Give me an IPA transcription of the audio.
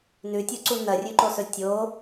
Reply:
nʉtʲuǀu nɐrʲʉǃosɵ tʲo

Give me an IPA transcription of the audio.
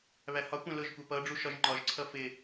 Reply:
βæhɒkʷæ̃ lʊʒ kʷæpʌɖ͡ʐu ʃɒʒŋ͡ǃɒʒǀʰʌ fɪ

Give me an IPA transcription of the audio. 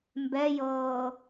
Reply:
mbɛjɤː

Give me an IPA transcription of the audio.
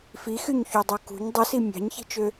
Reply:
fixyɲçudˤu kṳɲ dˤɯsi mʲɑ̤ɲçi̤t͡ʃø

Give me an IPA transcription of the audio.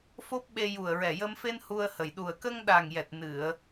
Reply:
fo˦˥p̚ɓe˧ ju˨˩ə̯ɹɛ˨˩jə˧mfe˧n hu˧ə̯hə˨˩j ɗu˨˩ə̯kə˧ŋɗa˨˩ŋjɛ˨˩t̚ nɨ˨˩˨ə̯

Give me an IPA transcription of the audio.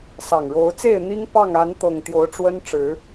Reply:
sɑ˨˩ŋɻo˨˦ʊ̯t͡se˥˨ɪ̯ n̪i˦ŋpɑ˥˨ŋ a˨˦nt̪ɤ˨˩ŋ t̪jo˨˦ʊ̯ʈ͡ʂwə˦nʈ͡ʂɻ̩˨˦

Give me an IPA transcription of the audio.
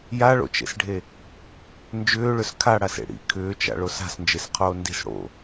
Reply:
jaɭo̰t͡ʃḛsɖʱe | nd͡ʒʏːɭʏs kʰaɽasḛ ɽḭ kʰʏːt͡ʃa̰ɭos a̤snd͡ʒesqʰoː ndi̤s ɽo̰

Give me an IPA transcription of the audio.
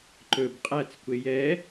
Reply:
ǃɵb qʼæt͡skʷe jɛ

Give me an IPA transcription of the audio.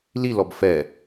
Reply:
lilɔb fɛ

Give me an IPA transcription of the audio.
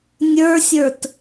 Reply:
nʲə˞sʲə˞t

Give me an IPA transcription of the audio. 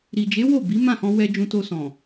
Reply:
ɾi˨d͡ʒe˨˦ wo˦˨bi˨˦ mã˦˨hɔ̃˧ wɛ˧ d͡ʒũ˧to˧sɔ̃˨

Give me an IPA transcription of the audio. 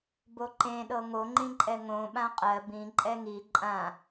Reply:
boǃẽɗɤ ŋoŋ͡ǃĩǃʼɛ ŋõ ɓãqʼɜ bĩ ǃʼɛŋi ǃʼã

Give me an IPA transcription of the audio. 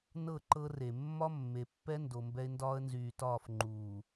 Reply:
nɤ˦˨ǃɤ˦ re˨ mːɒ˦mːe˨pːɛ˦ ndo˨mbɛ˦ɪ̯ ndɒː˦ə̯nzyː˨tɒː˦˨f ŋ͡ǃuː˨

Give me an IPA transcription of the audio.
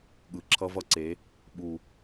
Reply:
ɠɯ˨ǁʰʌ˦vʌ˦ǀe˨˦ | ɓu˨

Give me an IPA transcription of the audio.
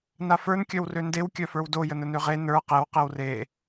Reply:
nafə˞n kʲœwrøndew kʲœfə˞wdo jənənøʁe nə˞ qew qewre

